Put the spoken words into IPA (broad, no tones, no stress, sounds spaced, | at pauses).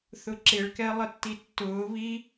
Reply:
θ ʊ ǁ ɪ ɭ k ɛ lˠ ə tː i tː ʊː β i